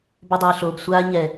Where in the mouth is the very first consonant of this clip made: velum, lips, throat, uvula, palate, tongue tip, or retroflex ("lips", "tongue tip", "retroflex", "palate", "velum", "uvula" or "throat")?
lips